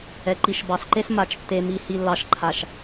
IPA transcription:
ɛ˨ ǃ i˨ ʃ b ɑ˨ s ǃ e˦ s m a˨ t͡ʃ tː e˨ m i˨ h i˨ lː ɑ˨ ʃ ǃʰ a˨ ʃ

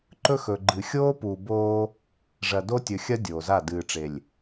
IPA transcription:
ǃ ɵ˦ x ɵ˨ ɡ͡ǃ ɨ˨ xʲ oː˦ p uː˨ b oː˦ | ʐ ɐ˨ d o˦ tʲ ɵ˨ xʲ ɐ˦ dʲ oː˨ z a˦˨ d ɨː˨ ʈ͡ʂ e˨ lʲ

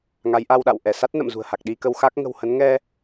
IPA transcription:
ŋ a˨˦ j ʔ a˧ w ɗ a̰˧˨ w ʔ ɛ˧˩ s a˦˥ t̚ n ə̰˧˨ m z ṳ˨˩ ə̯ h a˨˩ k̚ ɗ i˧ k ə˧ w x a˦˥ k̚ ŋ ə̤˨˩ w h ə˨˦ n ŋ ɛ˧

